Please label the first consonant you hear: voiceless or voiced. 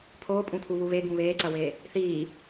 voiceless